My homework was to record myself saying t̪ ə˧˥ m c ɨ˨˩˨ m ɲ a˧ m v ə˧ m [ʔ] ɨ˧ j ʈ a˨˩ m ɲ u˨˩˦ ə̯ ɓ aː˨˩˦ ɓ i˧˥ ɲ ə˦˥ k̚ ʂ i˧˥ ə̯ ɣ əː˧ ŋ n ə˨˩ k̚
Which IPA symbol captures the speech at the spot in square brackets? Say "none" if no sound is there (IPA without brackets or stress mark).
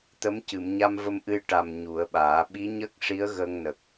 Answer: ʔ